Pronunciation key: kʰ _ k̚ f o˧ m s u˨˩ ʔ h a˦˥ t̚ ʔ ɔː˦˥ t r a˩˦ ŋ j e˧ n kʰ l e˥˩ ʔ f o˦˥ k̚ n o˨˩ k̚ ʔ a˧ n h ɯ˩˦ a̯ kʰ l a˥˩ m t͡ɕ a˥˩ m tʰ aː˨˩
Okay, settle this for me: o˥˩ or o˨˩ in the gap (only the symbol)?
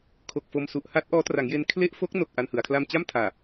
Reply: o˨˩